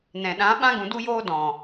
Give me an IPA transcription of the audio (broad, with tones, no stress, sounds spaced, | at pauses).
n ɛ̃˨ ɗ ã˨˦ ɓ ã˦ ɡ ũ˧ d u˦ j oː˦ d ɔ̃˨